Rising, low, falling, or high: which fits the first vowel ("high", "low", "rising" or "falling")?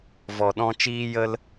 low